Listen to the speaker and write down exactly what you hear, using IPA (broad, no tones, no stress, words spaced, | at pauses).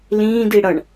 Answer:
lĩːdi ɽʌɳ